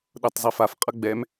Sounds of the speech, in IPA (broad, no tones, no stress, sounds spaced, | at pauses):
ɗ ɤ tˤ zˤ i f a f qʼ ʌ ɡ͡b ɛ m